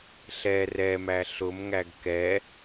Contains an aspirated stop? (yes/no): no